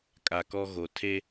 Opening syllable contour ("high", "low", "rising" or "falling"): low